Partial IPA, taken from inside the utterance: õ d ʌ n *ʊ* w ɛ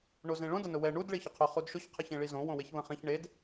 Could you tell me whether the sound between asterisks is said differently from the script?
no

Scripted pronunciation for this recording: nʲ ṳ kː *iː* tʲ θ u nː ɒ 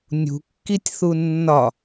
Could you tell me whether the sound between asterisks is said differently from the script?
yes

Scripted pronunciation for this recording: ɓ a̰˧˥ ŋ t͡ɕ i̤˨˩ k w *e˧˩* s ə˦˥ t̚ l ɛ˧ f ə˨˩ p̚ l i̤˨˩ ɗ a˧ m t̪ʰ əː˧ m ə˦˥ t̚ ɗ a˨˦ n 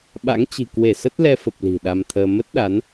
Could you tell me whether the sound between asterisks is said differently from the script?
no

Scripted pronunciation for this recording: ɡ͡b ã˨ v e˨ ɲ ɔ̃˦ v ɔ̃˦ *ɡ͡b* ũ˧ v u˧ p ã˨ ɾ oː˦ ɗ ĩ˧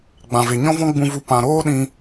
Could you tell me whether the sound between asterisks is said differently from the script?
no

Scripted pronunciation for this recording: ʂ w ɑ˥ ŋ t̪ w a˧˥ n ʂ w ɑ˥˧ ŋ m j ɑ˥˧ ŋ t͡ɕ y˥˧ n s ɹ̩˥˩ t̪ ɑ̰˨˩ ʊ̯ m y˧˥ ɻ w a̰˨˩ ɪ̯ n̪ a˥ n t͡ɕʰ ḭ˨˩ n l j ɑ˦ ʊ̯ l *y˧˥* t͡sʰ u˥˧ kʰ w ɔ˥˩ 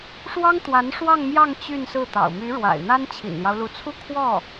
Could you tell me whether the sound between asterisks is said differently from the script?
yes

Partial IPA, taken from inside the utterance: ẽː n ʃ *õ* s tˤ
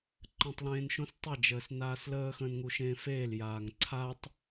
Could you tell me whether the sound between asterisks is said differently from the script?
no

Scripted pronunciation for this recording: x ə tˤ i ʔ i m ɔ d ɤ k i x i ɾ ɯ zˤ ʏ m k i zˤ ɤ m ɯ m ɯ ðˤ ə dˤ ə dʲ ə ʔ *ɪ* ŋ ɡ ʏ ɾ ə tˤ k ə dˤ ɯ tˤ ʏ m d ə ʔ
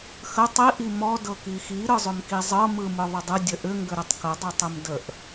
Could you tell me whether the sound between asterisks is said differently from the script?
yes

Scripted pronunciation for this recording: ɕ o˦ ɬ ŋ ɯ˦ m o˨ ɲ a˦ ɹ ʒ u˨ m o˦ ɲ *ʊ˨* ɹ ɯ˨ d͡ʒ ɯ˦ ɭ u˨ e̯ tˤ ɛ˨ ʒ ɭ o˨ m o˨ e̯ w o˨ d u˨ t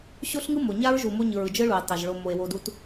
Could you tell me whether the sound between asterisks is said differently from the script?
yes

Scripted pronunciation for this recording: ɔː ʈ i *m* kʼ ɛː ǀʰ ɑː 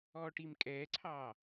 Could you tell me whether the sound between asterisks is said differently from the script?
no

